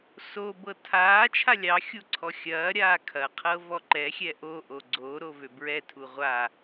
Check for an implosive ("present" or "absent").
absent